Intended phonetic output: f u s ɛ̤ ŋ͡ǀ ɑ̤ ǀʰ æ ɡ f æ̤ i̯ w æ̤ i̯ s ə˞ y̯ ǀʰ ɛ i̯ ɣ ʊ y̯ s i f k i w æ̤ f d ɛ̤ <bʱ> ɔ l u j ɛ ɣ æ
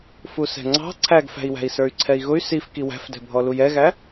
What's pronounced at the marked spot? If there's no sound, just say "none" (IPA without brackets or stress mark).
bʱ